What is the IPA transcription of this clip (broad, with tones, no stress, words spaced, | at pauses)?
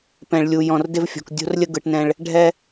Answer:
pɛ̃˨ɭlʲu˨ jɔ̃˨rdɪ˦vfʲɔ̤˨k dʲo̤˦rlʲə˦ɡɯ˨ʈ nɛ̃˦ɭ | ɖʱɛ˦